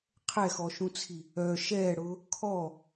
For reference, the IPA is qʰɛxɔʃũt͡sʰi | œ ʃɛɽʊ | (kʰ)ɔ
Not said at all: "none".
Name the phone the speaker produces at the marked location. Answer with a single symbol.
kʰ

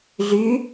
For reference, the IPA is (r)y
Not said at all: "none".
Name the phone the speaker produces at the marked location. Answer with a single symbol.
ɮ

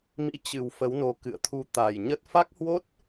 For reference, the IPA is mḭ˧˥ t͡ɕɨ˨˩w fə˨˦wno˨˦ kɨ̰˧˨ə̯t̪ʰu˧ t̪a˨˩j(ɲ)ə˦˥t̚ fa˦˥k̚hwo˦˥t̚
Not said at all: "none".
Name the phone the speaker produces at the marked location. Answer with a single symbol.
ɲ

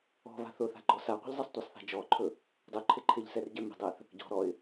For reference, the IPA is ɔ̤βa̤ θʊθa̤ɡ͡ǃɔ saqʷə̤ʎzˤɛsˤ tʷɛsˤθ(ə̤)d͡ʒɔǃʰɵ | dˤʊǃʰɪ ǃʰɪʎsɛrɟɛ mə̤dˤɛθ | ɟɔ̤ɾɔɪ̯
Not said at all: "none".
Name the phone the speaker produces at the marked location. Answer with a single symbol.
a̤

